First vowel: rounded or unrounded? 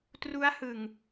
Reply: rounded